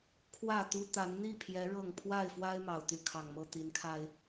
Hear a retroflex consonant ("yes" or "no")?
yes